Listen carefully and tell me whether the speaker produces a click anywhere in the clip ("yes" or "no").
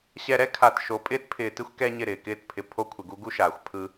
no